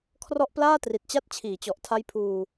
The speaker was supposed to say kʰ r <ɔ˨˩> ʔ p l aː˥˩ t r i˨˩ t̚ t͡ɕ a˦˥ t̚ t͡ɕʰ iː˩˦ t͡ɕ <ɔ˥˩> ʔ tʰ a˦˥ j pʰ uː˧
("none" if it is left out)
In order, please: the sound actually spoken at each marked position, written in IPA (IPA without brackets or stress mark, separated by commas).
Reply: ɔ˦˥, ɔ˨˩